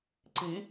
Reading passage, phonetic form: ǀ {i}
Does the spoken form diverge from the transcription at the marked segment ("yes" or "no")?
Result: no